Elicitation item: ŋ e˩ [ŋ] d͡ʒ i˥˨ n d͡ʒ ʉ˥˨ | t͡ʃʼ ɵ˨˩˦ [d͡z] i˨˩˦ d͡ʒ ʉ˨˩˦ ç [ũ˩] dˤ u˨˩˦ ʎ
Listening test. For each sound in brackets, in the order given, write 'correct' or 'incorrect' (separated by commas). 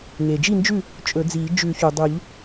incorrect, correct, incorrect